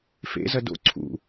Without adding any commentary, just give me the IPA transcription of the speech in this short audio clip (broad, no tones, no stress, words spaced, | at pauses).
fḛzɐ do̰ ǀʰṵ